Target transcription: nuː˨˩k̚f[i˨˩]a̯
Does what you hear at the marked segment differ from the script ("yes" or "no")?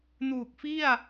yes